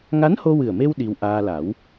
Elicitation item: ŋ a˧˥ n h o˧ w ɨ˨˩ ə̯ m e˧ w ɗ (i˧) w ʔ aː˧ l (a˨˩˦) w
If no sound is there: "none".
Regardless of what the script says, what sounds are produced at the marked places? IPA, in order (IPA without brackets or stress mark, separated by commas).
i˧, a˨˩˦